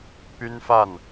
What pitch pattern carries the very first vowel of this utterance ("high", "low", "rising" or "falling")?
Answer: high